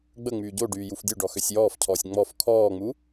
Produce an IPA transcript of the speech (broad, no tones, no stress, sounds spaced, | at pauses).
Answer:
ɡ͡b ə ŋ͡m yː ɟ o ɖ yː j u f dʲ o ɖ ɔ x ø sʲ j ɔː f cʰ ɔː sʲ ŋ͡m ɔ f kʰ ɔː ŋ͡m u